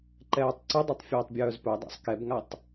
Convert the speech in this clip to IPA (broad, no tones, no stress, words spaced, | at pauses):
ǃɛːtˤǀʊdˤʊtˤ fʲɛːtˤbʲœːzpœdˤa̰sˤ kɛbŋatˤ